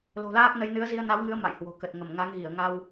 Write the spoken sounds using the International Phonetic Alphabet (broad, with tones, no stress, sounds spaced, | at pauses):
l o̤˨˩ l aː˦˥ k̚ n ə˨˦ j n ɨ˨˦ ə̯ z i˧ ə̯ n a˨˦ w ŋ ɨ˨˦ ə̯ m a̰˧˨ j h w o̤˨˩ k ə˨˩ t̚ ŋ ə˧˩ m ŋ a˨˦ ŋ ɣ i˧˩ ə̯ ŋ a˧ w